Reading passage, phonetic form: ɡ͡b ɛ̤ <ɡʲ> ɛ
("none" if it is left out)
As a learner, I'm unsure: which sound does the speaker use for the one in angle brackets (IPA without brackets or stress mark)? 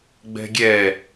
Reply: ɡʲ